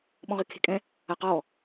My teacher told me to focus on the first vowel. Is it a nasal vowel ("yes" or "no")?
yes